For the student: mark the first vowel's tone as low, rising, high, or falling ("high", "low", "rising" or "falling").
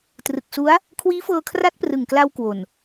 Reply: low